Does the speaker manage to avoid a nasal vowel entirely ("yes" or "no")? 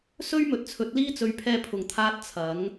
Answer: yes